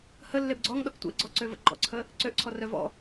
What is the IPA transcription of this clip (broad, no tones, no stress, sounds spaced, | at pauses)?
h ə lː e b ɡ͡ǀ ɔ ŋ ɗ ɔ k tʷ ḛ ɡ͡ǀ ɔ ǀ ø v ə̰ ɡ͡ǃ ɔ̰ ǀʰ ə | ǀ ø ʔ ǀʰ ɔ r œ v ɔ̰